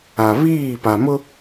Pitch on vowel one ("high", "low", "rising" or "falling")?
low